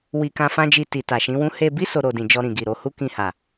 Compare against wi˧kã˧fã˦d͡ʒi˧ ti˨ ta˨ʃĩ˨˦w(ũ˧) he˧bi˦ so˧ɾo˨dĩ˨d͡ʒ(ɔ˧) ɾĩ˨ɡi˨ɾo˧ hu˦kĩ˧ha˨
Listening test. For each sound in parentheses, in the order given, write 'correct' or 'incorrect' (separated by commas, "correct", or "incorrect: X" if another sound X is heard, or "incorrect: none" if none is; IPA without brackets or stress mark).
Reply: incorrect: ũ˦, correct